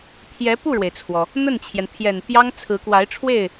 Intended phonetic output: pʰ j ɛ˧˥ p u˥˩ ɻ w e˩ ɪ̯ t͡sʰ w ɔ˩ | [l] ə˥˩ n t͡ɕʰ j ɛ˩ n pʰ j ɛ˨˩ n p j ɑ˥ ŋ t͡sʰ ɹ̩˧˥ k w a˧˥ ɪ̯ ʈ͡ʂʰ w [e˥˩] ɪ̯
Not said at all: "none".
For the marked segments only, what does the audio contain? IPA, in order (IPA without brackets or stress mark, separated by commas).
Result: n̪, e˥˩